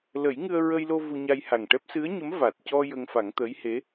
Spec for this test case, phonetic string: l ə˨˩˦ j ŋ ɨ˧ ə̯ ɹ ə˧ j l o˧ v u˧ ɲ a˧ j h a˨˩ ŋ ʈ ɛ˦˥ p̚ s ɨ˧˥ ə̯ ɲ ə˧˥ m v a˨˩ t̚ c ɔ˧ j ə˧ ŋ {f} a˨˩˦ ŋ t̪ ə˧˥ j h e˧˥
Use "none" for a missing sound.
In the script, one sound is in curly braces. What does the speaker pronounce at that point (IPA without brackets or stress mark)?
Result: f